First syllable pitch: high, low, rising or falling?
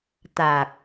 low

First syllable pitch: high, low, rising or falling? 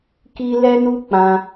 high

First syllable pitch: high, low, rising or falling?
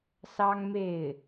high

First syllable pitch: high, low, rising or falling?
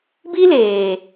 high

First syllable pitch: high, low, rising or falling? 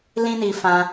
high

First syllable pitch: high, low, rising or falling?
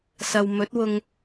low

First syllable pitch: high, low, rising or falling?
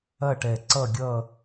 falling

